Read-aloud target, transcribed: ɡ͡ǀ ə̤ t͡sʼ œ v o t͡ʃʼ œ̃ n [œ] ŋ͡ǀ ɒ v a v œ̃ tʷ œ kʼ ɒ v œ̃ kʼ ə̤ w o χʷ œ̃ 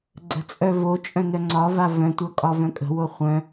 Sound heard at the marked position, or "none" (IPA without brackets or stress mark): œ